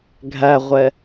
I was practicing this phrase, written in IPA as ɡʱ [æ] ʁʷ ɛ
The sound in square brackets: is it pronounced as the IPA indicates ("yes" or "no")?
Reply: yes